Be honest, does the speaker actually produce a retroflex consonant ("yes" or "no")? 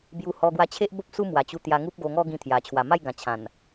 no